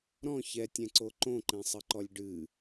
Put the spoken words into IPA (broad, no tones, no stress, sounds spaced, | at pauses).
ɾ ɔ̃ ç ɛ tʲ ɛ̃ ǀ o ǃ õ ǃ ɛ̃ sˤ ɨ ǃ ɔ lʲ ɖ ɨ